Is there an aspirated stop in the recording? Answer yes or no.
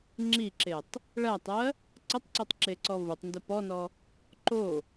no